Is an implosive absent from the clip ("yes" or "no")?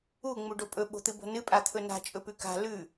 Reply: no